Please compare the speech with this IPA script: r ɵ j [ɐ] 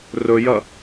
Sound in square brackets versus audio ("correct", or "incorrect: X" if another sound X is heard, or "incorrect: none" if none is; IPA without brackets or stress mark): correct